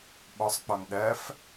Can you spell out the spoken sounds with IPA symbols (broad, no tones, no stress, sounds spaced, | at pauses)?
ɓ ɔ sˤ k͡p ɔ n ɗ ɜ f